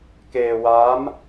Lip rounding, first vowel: unrounded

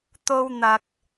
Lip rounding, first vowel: rounded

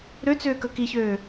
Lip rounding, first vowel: rounded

